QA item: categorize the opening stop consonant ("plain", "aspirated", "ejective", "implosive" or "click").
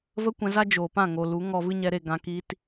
plain